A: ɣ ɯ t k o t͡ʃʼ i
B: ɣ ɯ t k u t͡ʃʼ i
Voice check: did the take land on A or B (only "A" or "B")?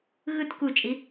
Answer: B